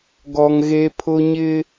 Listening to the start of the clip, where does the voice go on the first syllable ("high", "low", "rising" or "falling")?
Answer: high